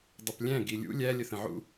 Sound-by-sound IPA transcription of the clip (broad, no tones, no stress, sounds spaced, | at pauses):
dˤ ə p lʲ æ̃ ɡ i lʲ ṵ lʲ æ lʲ ə θ ə̃ ʕ ṵ